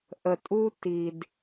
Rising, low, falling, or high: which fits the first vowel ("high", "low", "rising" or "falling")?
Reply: low